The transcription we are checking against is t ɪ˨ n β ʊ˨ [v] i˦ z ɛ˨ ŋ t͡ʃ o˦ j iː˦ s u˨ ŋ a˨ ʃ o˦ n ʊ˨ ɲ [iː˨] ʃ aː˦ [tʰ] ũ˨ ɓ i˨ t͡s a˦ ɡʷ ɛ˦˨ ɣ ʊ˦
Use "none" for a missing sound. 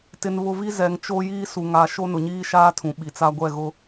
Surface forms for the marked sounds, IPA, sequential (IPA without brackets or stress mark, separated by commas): v, iː˦, tʰ